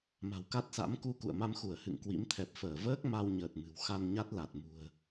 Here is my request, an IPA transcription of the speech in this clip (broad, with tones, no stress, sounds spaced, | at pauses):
m a̤˨˩ w k a˦˥ t̚ s a̰˧˥ m k u˧ k ṵ˧˨ ə̯ m a˧ m x u˧˩ ə̯ h ɨ̰˧˨ ŋ k w ḭ˧˥ m t̪ʰ ɛ˨˩ p̚ f əː˧˩ v əː˦˥ k̚ m a˧ w ɲ əː˨˩ t̚ m ɨ̤˨˩ w x a˧ n ɲ a˦˥ t̚ l a˨˩ t̚ m ṳ˨˩ ə̯